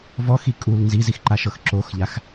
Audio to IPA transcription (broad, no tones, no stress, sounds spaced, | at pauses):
v ɔ x i kʼ u l n z i z i x ǃ a ʃ ɤ x ǁ o x ʎ a x